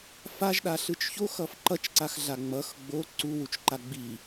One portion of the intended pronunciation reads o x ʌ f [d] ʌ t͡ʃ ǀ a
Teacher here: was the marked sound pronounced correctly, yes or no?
no